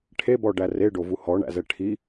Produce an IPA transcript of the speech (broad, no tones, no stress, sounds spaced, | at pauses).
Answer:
ʈʰ e b ɔ ɖ æ r e ɖ o v u h ɔ ɳ æ̰ z ɛ ʈʰ i